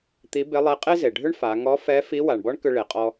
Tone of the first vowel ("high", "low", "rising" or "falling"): rising